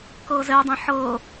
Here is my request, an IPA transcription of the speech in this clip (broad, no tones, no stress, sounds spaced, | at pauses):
k ɤː z ɛ dˤ ẽ ħ ɤː